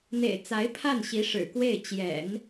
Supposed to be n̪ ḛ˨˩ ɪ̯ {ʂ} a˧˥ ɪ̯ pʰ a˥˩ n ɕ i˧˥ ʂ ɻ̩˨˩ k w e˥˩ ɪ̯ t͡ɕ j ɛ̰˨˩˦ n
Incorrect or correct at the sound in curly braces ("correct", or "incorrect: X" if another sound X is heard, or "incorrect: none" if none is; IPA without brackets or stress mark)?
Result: incorrect: t͡s